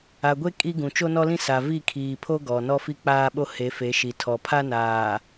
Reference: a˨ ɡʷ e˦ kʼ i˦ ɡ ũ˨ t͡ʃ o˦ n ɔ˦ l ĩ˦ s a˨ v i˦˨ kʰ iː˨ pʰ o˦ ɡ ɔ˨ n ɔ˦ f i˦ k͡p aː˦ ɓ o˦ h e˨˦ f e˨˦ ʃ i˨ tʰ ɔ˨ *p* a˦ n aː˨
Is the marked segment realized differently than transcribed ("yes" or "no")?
yes